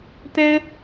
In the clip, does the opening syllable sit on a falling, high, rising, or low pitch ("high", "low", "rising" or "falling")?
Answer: high